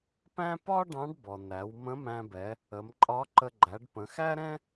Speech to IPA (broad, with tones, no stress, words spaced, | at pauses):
pæ̃˥ pɒ˥ ɖɑ̃˧˥ɖbɔ˩næ˩˧w mə̃˧˥mæ̃˧bɛ˩˧ | ə˩˧mǃʼɒ˧˥ǃə˧ ɡ͡ǃæ˩˧ɖpə̃˩˧xæ˥ɾɛ̃˥